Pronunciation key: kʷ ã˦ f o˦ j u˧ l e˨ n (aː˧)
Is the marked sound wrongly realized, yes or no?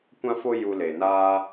yes